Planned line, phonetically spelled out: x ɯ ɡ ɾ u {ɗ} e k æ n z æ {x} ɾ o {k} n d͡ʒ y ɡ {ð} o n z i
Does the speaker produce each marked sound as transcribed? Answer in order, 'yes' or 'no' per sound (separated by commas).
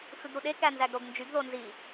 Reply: yes, no, no, yes